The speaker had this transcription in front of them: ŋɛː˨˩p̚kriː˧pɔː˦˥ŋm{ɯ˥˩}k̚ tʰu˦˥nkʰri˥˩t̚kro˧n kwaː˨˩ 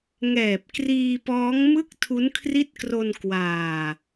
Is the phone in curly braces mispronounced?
no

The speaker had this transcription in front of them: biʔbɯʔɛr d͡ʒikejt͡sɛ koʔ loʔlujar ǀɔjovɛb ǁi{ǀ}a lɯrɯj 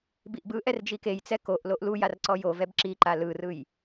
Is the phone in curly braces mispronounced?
yes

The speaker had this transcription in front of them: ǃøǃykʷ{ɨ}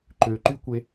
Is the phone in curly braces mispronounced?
yes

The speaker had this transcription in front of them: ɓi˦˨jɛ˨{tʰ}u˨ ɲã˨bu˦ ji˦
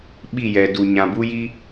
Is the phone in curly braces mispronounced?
yes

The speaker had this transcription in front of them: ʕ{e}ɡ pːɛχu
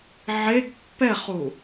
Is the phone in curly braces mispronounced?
no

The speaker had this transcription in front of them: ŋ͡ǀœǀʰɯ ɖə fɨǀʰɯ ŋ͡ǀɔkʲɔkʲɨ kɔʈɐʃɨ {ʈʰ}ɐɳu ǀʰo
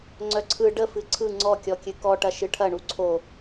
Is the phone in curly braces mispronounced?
no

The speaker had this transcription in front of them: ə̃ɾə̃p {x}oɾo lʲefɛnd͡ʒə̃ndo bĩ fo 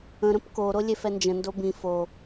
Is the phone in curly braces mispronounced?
yes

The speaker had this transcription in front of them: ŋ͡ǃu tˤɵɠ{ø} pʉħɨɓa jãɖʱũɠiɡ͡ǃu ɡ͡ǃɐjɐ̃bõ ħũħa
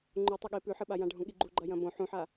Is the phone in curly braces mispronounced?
yes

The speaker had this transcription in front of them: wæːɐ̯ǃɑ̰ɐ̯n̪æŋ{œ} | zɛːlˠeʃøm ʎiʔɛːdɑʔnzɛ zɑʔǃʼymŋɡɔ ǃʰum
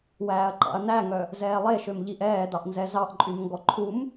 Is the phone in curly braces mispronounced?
no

